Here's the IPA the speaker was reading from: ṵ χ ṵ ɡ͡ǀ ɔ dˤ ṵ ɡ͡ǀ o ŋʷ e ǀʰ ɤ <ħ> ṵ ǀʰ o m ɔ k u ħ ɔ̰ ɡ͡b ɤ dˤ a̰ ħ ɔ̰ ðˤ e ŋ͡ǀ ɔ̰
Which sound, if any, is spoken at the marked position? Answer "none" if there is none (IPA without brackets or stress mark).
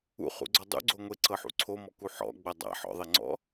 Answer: ħ